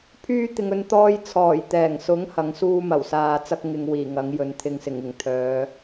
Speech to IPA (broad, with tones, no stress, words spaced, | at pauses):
pʰyː˥t̪ɪ˧ŋɵ˧n t̪ɔː˧jt͡sʰɔː˨˩j t̪ɛː˨˩ŋsʊ˨˥ŋ hɐ˨˧ŋsuː˥ mɐ˨˩wsaː˧t͡sɐ˥k̚ ŋɪ˧ŋwiː˨˩ ŋɐ˨˥ŋjɵ˨˧n t̪ʰɪ˨ŋsɪ˨˩ŋ ɪ˨˩ŋt̪ʰœː˨˧